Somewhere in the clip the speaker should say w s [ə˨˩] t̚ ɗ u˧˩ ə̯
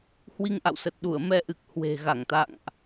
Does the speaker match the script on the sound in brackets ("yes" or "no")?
yes